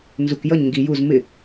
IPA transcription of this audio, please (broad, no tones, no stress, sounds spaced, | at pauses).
n z u k j ʌ ɲ ŋ ɡ i j u z m ɪ